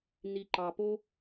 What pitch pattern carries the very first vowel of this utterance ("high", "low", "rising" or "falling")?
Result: low